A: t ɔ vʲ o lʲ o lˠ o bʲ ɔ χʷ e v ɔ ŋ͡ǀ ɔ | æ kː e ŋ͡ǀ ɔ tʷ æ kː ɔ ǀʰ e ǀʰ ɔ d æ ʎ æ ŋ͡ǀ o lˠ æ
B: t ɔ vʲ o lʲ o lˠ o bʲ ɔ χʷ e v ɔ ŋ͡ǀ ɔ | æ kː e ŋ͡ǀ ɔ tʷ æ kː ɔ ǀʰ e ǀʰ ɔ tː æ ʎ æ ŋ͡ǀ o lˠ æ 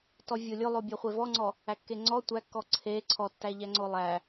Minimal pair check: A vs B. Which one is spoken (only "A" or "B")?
B